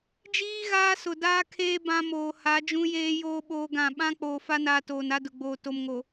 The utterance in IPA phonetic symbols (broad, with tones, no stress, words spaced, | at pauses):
d͡ʒiː˦ ɣaː˦ sʊ˨daː˦kʰeː˦ bã˦moː˨ha˨˦ d͡ʒũ˦jeː˦ joː˦ ɓoː˦ɡã˦˨ ɓã˦ k͡poː˨fa˦naː˨ toː˨na˦dʊ˨ɡ͡boː˨ to˨mŋo˨